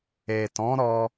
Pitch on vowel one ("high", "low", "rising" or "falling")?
low